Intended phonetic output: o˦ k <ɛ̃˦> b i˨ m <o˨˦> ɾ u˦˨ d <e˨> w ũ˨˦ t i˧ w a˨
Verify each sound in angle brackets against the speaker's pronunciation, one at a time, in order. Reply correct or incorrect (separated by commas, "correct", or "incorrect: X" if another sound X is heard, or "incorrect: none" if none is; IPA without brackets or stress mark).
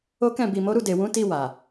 incorrect: ɛ̃˦˨, correct, correct